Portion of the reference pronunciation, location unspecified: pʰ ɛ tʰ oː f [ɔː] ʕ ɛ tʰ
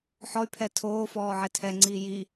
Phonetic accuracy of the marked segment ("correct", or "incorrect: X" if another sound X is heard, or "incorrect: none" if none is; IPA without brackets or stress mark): correct